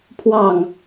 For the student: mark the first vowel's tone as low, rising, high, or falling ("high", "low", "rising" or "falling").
falling